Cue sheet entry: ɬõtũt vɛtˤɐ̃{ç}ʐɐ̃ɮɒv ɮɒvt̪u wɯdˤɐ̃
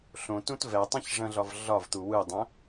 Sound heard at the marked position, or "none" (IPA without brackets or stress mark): ç